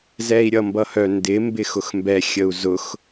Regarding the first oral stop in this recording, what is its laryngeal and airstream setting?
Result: plain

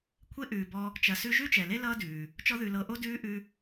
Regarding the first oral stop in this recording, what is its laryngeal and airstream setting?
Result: aspirated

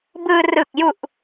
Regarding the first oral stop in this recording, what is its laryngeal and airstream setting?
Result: plain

